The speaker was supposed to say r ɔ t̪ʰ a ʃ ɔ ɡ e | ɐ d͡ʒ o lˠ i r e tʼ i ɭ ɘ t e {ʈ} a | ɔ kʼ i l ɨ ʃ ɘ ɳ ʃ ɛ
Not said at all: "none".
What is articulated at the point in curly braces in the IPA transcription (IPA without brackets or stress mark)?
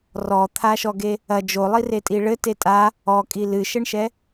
tʼ